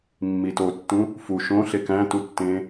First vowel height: high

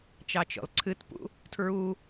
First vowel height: low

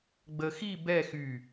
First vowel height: mid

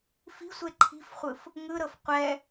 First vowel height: high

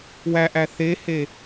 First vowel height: low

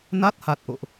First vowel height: low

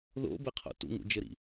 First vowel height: mid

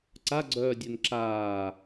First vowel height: low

